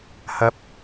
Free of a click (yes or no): yes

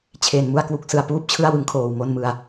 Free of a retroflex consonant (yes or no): yes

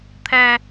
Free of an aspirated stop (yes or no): no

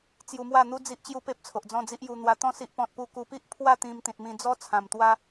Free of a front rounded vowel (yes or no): yes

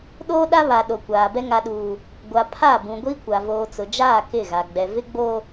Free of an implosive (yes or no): no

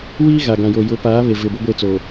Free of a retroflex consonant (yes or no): yes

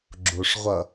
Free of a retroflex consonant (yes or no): no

